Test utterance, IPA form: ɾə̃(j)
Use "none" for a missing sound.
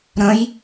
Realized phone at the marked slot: j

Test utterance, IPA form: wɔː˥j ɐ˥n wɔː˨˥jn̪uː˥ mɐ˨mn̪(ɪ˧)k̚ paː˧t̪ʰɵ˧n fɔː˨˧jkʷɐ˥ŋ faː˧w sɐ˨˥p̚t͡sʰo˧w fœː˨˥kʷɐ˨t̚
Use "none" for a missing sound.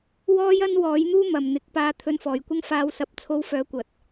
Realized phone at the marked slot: ɪ˨˥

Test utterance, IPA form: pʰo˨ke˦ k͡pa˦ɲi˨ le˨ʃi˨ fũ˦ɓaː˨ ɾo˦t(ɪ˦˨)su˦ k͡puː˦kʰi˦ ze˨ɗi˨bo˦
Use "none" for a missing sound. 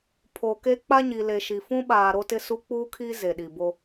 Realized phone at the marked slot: ɪ˦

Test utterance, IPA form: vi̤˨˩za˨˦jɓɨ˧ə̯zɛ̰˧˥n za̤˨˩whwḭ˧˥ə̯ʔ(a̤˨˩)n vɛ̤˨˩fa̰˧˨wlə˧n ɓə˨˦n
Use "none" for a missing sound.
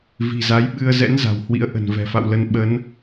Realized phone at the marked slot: ə̤˨˩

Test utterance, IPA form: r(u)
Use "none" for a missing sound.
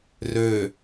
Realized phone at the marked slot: ø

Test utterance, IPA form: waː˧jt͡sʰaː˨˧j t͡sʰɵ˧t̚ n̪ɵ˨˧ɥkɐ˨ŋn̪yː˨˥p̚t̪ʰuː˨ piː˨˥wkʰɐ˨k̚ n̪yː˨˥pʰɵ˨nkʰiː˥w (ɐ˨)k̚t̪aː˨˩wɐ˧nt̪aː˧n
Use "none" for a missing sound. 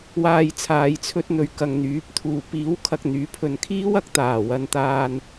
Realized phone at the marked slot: ɐ˨˥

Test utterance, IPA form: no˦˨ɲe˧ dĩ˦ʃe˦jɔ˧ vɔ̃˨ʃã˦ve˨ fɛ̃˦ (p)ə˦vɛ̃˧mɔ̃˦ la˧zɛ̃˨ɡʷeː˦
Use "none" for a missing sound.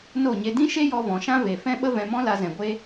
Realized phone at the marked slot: ɓ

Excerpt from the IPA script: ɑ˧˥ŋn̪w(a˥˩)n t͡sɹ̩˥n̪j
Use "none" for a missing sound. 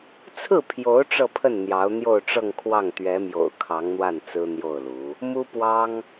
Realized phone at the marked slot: a˥˩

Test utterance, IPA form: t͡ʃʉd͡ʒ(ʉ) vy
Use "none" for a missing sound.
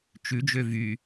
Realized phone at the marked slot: ø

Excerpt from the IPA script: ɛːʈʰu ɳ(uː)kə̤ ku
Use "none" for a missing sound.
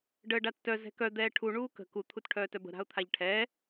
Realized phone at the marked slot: uː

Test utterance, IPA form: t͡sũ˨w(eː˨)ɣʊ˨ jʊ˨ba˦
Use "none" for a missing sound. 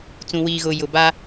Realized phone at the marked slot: iː˨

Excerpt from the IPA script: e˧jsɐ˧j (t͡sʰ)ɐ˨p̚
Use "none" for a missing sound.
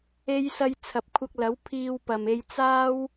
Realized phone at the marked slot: t͡sʰ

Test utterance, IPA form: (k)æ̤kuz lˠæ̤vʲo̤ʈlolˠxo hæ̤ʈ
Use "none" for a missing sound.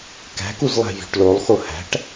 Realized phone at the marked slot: k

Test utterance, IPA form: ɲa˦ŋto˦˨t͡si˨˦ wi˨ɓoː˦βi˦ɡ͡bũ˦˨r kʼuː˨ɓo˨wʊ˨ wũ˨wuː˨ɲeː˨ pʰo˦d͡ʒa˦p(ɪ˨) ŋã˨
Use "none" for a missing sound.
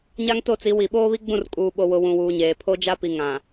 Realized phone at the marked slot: i˨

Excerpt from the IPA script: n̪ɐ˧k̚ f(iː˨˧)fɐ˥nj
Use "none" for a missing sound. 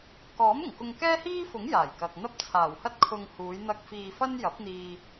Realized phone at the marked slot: iː˧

